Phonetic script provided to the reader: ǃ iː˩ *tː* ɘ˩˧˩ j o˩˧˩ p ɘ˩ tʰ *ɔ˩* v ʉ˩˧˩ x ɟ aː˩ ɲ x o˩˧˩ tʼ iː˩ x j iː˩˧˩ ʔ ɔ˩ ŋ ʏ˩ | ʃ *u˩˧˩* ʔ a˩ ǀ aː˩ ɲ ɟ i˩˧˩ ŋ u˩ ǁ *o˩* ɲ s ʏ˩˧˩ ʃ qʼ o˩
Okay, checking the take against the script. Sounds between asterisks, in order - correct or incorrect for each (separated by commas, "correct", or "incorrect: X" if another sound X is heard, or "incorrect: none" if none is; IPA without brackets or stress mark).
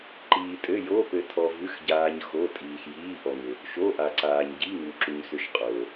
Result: incorrect: tʼ, correct, incorrect: o˩˧˩, incorrect: u˩